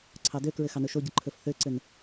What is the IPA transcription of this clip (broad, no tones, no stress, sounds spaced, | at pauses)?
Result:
ǀʰ ɑ d ø k ɹ ɘ x ɑ n ɵ ʃ o ɟ ɘ ǃʰ ɵ f θ ø ǀ ɘ n